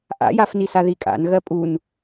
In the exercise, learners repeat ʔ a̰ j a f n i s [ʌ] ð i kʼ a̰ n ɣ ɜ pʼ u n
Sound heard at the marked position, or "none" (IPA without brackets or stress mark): a